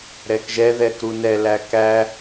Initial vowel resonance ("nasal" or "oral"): oral